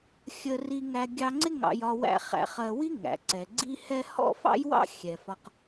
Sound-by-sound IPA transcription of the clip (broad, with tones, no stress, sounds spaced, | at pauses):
xʲ ə˧ r i˧ ŋ æ˧ ɡʲ ɑ˧ ŋ͡ǀ ɪ˦ ŋ ɑ̰˧ j ɒ˧ w æ̰˦ χ æ̰˧ χ ɜ˧ w i˦ ŋ æ̰˨ ǀ ɛ˨ ɡ͡ǀ i˦ h ɛ˦ h ɔ̰˦ f ɑ̰˦ j w ɑ̰˦ xʲ ɛ˨ f ɒ˧ q